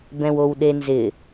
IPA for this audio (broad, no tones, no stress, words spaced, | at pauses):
bɛ̃wowɗenzɪ